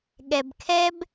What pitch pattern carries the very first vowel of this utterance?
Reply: low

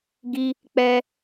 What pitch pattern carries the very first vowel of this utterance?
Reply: high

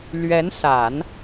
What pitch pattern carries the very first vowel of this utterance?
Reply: rising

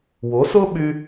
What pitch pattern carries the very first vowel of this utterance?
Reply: rising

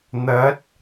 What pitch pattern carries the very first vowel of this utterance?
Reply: rising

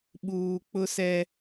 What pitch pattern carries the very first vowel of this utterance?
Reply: low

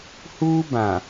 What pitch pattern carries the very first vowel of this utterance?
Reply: high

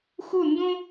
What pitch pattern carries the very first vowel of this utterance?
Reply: falling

